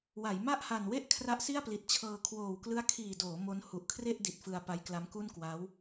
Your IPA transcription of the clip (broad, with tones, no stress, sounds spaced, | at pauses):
w a˩˦ j m a˥˩ ʔ h a˨˩ n w e˥˩ ʔ kʰ r a˦˥ ʔ s i˥˩ a̯ p l i˨˩ t̚ t͡ɕʰ ɤː˧ kʰ w oː˨˩ w k l ɯ˦˥ a̯ kʰ iː˨˩ d oː˩˦ m o˦˥ n h u˨˩ ʔ kʰ r e˥˩ ʔ d i˨˩ t̚ f ɯ˧ a̯ p a˦˥ j k l a˦˥ m k u˥˩ n k w a˦˥ w